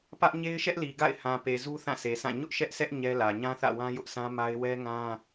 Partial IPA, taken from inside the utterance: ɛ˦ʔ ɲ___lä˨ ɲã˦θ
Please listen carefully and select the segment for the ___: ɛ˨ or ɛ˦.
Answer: ɛ˦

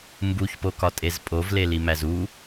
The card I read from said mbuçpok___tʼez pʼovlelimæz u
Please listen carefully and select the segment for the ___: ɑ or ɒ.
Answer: ɒ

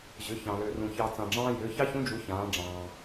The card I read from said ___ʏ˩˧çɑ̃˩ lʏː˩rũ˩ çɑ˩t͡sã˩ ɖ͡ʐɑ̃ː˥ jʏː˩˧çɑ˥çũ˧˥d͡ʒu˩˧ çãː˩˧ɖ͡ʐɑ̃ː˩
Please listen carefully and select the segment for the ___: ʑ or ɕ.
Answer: ʑ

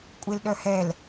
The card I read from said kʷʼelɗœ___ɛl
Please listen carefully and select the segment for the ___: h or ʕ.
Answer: h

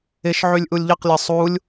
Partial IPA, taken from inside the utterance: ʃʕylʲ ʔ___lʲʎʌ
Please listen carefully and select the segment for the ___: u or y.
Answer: u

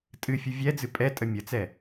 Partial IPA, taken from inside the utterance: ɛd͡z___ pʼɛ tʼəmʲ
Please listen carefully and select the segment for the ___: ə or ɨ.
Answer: ɨ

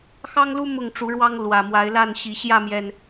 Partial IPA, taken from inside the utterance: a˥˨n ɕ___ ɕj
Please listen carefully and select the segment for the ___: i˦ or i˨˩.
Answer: i˨˩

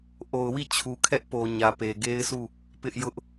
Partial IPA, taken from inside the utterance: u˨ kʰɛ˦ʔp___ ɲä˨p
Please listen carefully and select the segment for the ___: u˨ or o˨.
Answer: o˨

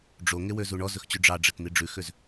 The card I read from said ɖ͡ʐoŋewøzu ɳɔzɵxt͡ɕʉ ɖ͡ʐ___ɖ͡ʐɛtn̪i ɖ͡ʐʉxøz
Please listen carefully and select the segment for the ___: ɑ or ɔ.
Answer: ɑ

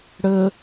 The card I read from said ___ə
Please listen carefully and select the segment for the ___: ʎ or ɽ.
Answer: ɽ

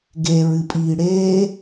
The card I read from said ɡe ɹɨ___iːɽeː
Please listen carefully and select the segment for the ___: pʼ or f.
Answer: pʼ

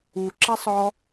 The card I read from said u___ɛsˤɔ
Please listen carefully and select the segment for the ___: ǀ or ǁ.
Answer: ǁ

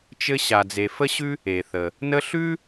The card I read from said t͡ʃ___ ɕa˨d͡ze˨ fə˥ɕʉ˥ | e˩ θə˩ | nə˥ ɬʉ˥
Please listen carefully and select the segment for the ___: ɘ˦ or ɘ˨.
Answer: ɘ˦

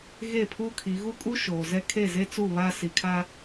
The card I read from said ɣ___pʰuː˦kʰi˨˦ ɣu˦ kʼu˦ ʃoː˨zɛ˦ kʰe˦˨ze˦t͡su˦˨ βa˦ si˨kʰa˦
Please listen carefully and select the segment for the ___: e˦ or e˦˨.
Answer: e˦˨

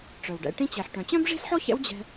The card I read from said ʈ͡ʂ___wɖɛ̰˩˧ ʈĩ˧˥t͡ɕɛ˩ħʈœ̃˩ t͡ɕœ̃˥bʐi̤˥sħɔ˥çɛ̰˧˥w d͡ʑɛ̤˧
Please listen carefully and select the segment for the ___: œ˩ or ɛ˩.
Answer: œ˩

